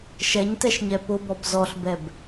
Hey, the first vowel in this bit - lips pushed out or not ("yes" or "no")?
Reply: no